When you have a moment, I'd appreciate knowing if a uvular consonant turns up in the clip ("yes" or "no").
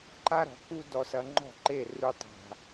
no